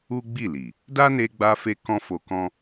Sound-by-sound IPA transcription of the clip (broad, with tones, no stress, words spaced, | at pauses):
u˦ɡ͡bi˦˨li˨ | da˦ne˧ɡ͡ba˧fe˧ kɔ̃˦fo˧kɔ̃˦